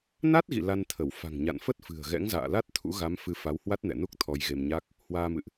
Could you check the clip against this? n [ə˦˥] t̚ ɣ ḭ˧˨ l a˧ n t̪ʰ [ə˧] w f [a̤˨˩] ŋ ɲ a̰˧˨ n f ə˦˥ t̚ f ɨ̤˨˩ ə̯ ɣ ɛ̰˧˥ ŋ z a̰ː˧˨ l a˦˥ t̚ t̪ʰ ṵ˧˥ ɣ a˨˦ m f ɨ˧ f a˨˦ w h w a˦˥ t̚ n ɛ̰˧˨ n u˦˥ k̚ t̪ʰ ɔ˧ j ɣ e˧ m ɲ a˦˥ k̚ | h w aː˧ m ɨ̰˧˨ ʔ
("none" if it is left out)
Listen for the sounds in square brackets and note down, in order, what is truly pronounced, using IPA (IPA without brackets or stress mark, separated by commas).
a˦˥, ə˧˩, a̤˨˩